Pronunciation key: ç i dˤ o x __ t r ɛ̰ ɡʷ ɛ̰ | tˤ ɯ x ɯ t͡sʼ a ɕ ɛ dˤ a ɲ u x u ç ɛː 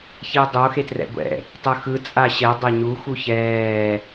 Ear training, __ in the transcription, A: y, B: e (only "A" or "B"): B